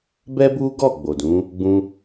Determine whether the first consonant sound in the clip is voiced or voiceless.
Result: voiced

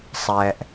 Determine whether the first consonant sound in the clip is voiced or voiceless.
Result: voiceless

